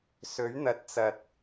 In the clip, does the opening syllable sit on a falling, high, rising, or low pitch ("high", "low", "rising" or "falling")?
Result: rising